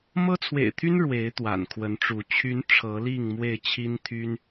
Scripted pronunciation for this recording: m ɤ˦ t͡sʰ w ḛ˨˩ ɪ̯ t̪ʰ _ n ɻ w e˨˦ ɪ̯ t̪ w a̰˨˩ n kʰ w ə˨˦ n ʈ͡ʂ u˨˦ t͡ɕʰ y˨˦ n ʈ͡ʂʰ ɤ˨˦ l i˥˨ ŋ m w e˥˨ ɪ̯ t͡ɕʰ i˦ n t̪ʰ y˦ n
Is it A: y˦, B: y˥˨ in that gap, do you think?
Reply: A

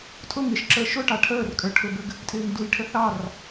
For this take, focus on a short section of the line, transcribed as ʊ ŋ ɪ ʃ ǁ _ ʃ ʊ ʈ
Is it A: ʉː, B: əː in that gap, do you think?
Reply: B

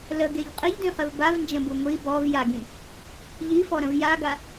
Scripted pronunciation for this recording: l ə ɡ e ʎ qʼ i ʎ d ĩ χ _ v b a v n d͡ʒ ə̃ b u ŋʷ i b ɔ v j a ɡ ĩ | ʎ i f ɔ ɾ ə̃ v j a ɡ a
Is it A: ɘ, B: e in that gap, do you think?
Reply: A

